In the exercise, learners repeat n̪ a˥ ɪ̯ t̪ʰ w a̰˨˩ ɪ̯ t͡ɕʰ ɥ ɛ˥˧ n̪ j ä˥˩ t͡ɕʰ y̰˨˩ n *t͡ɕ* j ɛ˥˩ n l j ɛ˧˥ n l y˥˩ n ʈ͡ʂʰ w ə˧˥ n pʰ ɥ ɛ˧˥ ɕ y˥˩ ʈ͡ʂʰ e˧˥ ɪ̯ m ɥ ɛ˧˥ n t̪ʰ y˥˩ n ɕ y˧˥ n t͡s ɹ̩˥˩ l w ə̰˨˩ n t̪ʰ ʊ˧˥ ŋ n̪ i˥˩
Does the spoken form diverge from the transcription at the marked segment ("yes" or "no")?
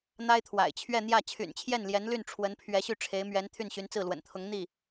yes